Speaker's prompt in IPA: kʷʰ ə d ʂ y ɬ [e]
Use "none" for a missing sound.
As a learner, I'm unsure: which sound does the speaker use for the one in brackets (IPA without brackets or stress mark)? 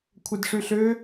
ø